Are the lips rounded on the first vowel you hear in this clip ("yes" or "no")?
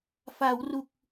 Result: no